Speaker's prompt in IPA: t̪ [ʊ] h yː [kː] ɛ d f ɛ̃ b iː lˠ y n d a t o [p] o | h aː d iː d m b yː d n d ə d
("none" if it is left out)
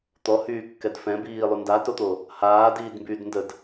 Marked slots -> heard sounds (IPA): ɔ, kː, t̪

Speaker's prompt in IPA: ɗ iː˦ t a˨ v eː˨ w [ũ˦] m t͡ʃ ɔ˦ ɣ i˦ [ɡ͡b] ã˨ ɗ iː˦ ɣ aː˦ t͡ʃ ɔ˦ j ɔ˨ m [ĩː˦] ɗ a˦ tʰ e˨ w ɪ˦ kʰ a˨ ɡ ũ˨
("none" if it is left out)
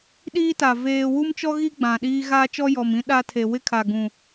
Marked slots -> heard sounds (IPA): u˦, ɡ͡b, ĩ˦

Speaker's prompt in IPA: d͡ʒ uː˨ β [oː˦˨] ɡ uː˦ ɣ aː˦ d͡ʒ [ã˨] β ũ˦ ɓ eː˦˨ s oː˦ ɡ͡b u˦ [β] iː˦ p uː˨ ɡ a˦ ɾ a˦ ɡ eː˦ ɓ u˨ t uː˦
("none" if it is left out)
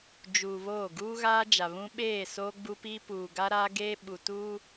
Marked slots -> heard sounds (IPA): oː˦˨, a˨, p

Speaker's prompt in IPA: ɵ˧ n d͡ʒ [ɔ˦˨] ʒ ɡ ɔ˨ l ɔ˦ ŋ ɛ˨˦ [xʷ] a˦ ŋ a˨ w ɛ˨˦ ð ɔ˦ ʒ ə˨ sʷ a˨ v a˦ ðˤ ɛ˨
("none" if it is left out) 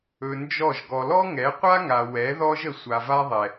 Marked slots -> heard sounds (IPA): ɔ˦˨, qʷ

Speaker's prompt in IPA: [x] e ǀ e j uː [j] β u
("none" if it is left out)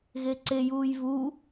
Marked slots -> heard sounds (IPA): ɣ, j

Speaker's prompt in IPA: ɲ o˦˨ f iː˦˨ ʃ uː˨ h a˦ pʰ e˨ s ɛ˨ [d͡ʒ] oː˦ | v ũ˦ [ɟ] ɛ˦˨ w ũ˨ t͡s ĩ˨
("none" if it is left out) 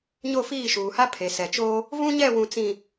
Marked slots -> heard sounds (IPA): t͡ʃ, ɲ

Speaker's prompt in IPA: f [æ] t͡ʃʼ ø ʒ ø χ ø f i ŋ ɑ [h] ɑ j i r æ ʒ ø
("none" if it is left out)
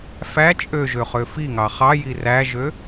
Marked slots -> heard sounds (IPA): æ, χ

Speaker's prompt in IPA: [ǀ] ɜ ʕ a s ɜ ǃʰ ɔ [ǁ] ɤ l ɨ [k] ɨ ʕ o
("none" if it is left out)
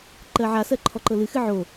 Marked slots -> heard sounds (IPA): ǃ, ǃ, x

